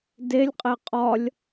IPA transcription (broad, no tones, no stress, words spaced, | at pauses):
delʲqʼe qʼɒlʲ